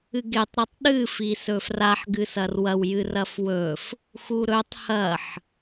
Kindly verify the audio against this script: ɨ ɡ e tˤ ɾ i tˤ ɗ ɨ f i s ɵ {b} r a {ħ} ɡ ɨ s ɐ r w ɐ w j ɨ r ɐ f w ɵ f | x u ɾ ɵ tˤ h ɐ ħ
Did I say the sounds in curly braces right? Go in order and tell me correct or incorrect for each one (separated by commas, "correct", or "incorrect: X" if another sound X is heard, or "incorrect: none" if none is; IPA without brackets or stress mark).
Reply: incorrect: f, correct